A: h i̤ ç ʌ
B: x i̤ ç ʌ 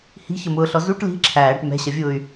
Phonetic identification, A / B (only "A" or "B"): A